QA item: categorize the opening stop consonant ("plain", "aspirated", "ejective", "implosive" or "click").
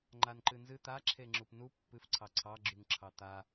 click